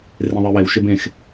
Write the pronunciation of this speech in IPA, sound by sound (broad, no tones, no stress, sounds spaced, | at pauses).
r ẽ ðˤ e w e w ʃ e b ẽ x